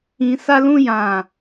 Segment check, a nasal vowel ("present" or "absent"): present